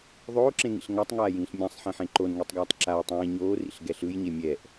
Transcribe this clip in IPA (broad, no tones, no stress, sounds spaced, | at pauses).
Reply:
ðˤ oː ǁ ẽ ŋ ḭ ɬ ŋ a tˤ ŋ aː j ĩː ɬ mʲ ã sˤ ħ ĩ ħ ẽ ǃ o n ŋ i tˤ ɡ aː tˤ ǁ a ə̯ tˤ ĩː ɲ oː r ḭ ɬ ɡ ɛ ɬ ɯ j ɲ e mʲ ɛ ʔ